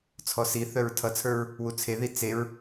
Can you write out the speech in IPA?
t͡sʰɔsiθœɹ tʰʌt͡sʰə˞ɹ | wut͡sʰeði t͡seɹ

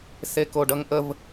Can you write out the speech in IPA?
sekoɖʌŋʔəv

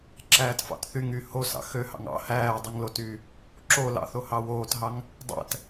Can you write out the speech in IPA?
ǁæːtfɑ̰tθyŋy hosɑ̰ xøhɑ̰ŋ ɑ̰ hæːdˤɯŋ lotyː | ǁo lɑ̰θo hɑwoːtɦɑŋ | dˤæ̰t

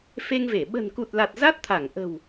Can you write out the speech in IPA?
fe˧ŋve˧˩ ɓə̤˨˩nku˨˩t̚la˨˩t̚ za˦˥t̚t̪ʰa˧˩ŋʔə̤˨˩w

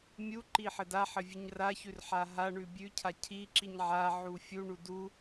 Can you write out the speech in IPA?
mʲuǃi ħɘdaħɘvʲʉɲ raçʉrħa ɦaɳʉ bʲʉcʰa cʰi ǁiɲʕa ʕufʲu ɳudu

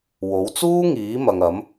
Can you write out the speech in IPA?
wo˨˥wt͡suː˥ŋiː˨˥ mɐ˨ŋɐ˨˥m

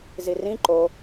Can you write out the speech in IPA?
zirĩ ǃo

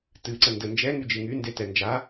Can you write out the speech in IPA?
tɨ ǀəndə nd͡ʒɛŋy d͡ʒɨŋynde tɛnd͡ʒa

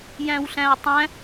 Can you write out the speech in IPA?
jæ̃wɬæ̃u̯tˤæ̃

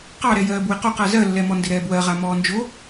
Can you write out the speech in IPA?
qɑɾɛjɜːb wɪqoq azɜlːɛmɔ ndɪɾɛːbwɜʁa mɔːnd͡ʒo

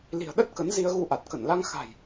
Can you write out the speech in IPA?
li̤˨˩ə̯ɗə˦˥t̚ kə˨˦nzi˧ə̯ɣu˧ ʔa˨˩t̚kə˧˩nla˧ŋ xa̤˨˩j

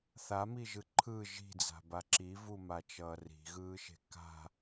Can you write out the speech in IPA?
θamiʒɯ ǃʰɯ ʒi̤d͡za̤ba ǁivumat͡ʃʌː ri̤ɣɯːʃe̤ ka̤

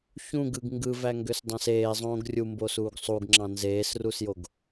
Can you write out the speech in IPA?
çũɡɯɡ ŋɡɯvæŋɡøsdˤɑ̃s eːzˤõːɡ rʲumboːsuːɡ sˤuɡŋ͡ǁɑ̃ nzeːsrusjoɡ

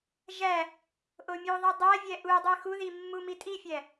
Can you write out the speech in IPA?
ʒæ | ʔomʲuðˤi dˤævʲæ ʔudˤe xuði mːumitʼifʲæ

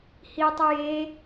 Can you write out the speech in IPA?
hitˤu je

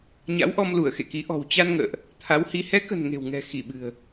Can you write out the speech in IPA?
ɲa̰˧˥wʔɔ˧mlu˧˩ə̯ xḛ˧˨ki˨˦ ʔɔ̤˨˩wt͡ɕa˧nŋə̰ː˧˨ʔ | t̪ʰa˨˦whi˨˦ hɛ˨˦kə̤˨˩n ŋe̤˨˩wŋɛ̤˨˩ xi˧˩ɓɨ̤˨˩ə̯

